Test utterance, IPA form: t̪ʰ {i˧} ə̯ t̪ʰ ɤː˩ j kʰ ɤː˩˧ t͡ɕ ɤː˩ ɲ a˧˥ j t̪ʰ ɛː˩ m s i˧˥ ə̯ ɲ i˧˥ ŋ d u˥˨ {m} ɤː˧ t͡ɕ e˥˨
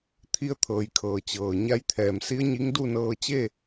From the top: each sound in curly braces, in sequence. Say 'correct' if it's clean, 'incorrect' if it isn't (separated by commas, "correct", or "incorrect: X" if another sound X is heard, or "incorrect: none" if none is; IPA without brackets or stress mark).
correct, incorrect: n